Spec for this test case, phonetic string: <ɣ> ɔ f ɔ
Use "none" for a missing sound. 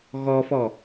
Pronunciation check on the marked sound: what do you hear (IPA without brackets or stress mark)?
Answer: ɣ